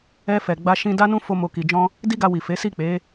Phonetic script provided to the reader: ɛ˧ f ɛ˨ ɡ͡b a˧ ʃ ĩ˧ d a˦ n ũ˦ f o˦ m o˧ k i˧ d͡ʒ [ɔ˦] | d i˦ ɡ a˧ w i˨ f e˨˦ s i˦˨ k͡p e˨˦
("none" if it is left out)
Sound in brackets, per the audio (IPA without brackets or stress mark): ɔ̃˦